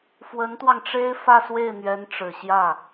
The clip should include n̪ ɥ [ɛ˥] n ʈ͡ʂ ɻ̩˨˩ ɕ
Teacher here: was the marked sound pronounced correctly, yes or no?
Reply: no